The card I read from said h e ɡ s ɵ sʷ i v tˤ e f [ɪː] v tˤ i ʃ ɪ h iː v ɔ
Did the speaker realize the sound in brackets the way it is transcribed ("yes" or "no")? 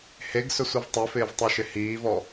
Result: yes